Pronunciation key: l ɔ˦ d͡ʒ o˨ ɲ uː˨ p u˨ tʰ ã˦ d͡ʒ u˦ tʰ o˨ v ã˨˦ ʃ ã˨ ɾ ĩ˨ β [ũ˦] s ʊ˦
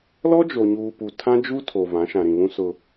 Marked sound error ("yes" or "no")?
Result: no